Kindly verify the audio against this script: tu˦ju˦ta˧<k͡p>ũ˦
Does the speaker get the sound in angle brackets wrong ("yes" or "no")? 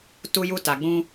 yes